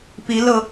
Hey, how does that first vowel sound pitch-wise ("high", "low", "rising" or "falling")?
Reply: rising